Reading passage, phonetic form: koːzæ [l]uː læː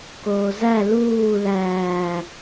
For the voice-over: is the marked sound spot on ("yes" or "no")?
yes